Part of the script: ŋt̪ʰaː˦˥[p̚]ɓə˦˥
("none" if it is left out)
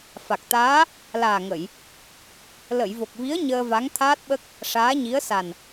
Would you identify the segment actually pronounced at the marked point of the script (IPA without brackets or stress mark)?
t̚